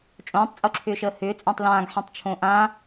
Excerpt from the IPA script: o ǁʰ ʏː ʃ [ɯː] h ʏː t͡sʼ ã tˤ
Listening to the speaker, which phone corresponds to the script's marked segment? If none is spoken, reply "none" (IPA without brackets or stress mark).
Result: əː